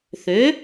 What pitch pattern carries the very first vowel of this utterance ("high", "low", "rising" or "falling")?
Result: rising